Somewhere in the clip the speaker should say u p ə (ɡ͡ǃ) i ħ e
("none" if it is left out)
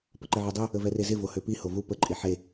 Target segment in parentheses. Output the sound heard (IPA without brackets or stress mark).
ǃʼ